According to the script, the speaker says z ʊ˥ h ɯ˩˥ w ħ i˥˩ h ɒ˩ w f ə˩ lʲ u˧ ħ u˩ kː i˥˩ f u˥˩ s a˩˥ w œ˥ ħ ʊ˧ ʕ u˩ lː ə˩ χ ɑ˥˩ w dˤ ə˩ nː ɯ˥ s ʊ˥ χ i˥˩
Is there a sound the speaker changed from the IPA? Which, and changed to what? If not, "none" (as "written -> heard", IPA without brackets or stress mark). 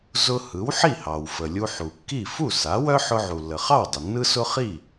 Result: ɒ˩ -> ɑ˩